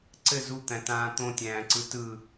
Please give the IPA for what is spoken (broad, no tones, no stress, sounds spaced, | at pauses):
ǀ ɘ z u t̪ æ̃ t ãː t̪ õ tʲ æ̃ː ǀ ɯ t ɯ